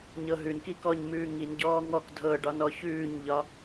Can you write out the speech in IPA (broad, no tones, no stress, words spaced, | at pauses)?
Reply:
ɲɤɦʉnki kɔɲ mʉːŋinɟɔː ŋɔk dʱɤɖɒn ɔçʉːɲʎɒ